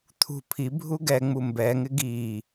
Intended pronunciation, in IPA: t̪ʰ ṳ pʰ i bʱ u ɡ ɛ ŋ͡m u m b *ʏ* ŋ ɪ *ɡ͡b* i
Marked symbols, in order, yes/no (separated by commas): no, no